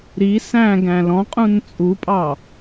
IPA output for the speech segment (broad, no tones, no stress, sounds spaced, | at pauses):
ɾ i s æ̃ ɡ æ̃ l ɔ̃ qʼ ũ n t͡sʼ u pʼ ɑ